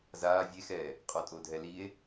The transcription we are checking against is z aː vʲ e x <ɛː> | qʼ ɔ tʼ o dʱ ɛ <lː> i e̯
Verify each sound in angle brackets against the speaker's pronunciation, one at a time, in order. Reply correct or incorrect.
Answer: correct, incorrect: l

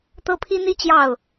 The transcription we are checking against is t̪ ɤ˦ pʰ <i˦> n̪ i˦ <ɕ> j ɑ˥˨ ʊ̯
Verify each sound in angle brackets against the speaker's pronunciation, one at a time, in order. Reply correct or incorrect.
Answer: correct, incorrect: t͡ɕ

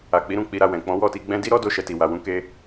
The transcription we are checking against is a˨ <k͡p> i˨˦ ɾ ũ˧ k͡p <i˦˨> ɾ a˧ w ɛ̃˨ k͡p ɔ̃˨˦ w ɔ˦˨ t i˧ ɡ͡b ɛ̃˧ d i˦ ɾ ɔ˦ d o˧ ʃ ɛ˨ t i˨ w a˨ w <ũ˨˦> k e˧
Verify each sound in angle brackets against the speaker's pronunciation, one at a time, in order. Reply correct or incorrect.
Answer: correct, incorrect: i˧, correct

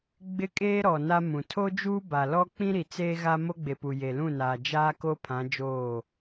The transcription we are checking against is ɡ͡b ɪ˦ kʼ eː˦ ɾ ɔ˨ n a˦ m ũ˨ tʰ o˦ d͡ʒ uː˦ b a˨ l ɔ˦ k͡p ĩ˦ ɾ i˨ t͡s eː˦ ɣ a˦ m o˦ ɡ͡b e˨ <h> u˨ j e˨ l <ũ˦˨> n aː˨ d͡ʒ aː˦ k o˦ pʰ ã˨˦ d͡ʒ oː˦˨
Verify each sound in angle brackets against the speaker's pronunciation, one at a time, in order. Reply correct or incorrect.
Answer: incorrect: p, correct

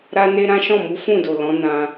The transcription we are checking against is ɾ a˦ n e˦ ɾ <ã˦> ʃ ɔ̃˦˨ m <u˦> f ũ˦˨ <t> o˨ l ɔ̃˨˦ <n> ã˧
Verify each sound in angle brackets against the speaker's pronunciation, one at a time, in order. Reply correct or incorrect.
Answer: correct, incorrect: u˨˦, incorrect: d, correct

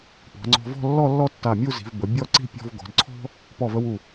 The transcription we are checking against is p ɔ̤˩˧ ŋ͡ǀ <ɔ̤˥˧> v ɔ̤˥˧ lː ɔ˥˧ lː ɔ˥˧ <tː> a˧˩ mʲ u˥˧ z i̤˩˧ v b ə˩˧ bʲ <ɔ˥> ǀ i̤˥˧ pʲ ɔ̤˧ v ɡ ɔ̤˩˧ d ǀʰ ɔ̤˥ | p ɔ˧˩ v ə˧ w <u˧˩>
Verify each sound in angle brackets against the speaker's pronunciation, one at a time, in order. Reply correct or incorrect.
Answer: incorrect: ɔ̤˧, correct, incorrect: ɔ˥˧, correct

